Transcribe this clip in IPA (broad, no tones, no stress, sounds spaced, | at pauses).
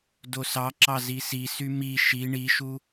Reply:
d o s ɑ ǁ ɑ z i s i s y m i ʃ i ɳ i ʃ u